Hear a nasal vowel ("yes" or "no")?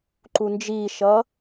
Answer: no